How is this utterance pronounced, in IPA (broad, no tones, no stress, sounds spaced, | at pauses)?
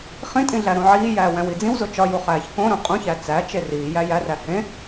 χ ĩ tʼ ĩ ɮ æ ɾ õ ʕ iː j æː w æ̃ w i d͡z ĩ w z o t͡ʃ ɒ j u χ æː ç k õ ɾ õ qʼ ũ ç æ t͡s æ t͡ʃ e r iː j æ j æ r æ h ẽ